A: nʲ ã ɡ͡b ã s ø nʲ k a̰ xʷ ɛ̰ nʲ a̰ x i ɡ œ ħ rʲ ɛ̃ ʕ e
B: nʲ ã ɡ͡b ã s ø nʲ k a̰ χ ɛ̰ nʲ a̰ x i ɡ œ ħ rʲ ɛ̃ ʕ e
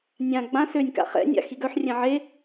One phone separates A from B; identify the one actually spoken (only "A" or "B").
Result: B